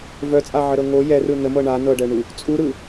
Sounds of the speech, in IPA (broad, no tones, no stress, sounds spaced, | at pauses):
v œ t͡sʼ a ʕ ə ɾ ɤ ŋ o j ɛ r ɯ n ə m ɤ ɳ a n ɤ ɖ ɛ ɳ u | t͡sʼ u ɾ ɯ